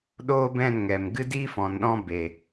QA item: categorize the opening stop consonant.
implosive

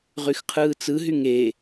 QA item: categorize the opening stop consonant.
aspirated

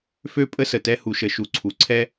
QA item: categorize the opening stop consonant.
ejective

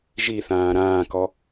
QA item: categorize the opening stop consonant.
plain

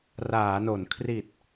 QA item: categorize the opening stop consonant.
aspirated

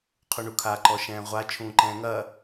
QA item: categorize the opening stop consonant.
aspirated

